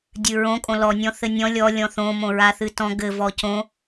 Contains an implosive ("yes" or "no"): no